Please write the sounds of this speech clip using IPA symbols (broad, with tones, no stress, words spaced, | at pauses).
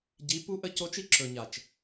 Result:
ɟi˨˦ pu˦ʔə˦ co˦t͡ʃi˦ ǁɵ˨ɲa˨t͡ʃ